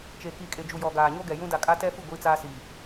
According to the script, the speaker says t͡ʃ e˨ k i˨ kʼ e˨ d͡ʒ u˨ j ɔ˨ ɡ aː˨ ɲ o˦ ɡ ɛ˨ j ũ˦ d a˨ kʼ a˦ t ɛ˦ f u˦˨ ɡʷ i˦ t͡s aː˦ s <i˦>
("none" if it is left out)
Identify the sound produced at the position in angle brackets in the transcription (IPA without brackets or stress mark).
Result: i˨